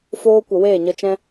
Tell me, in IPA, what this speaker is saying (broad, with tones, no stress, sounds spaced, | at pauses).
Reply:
f oː˧ kʷ ə˨ w eː˦˨ ɲ ə˧ t͡ʃ ɛ̃˦